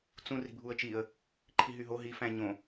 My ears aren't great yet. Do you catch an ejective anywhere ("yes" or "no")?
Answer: no